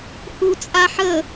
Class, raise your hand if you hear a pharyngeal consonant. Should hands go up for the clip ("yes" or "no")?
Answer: yes